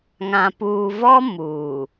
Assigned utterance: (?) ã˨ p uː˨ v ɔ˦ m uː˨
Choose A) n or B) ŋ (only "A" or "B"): B